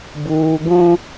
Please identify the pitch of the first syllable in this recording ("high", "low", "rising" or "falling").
high